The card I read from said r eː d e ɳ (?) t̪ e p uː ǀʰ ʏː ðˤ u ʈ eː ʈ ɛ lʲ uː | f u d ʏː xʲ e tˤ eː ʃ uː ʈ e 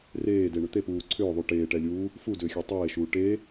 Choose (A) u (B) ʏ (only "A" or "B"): B